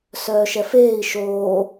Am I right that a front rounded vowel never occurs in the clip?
no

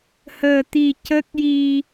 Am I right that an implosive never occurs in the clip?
yes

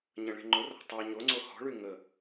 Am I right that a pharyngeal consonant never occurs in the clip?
yes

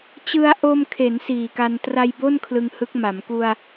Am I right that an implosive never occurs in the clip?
yes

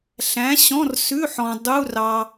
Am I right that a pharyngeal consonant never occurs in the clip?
no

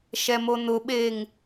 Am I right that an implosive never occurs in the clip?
no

